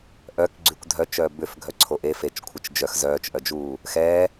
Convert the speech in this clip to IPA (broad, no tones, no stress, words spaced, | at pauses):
ʔœk ɡ͡ǀykʷdʱœt͡ʃœː bʏf ɡʱœǀʰoʔe fet͡ʃ kʷʰət͡ʃd͡ʒœx zœːt͡ʃʔœd͡ʒuː | xɛ